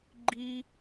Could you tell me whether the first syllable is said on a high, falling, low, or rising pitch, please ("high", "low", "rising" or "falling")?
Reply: high